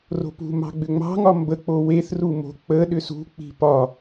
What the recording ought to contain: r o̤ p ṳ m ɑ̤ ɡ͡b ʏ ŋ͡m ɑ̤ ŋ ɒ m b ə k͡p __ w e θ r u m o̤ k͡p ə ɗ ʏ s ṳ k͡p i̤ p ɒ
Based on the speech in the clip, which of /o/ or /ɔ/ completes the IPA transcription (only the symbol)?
o